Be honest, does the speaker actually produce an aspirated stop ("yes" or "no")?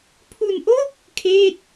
yes